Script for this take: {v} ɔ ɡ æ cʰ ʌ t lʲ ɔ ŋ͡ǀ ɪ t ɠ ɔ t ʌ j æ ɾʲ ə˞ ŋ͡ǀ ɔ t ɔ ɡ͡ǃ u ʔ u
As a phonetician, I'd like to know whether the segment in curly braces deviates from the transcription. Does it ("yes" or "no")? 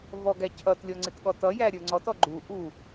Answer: no